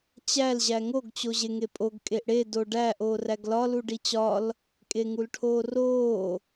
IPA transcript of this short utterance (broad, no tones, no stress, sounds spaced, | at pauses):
t͡ɕ æ l ʑ æ ŋ o ɡ t͡ɕ o ʑ e ŋ e pʼ o ɡ kʼ e ʔ ɽ e d o ɖ æ ʔ oː r æ ɡ l ɒ l u ɖ i t͡ɕ ɒ l | kʼ e ŋ u l ʈʰ oː r oː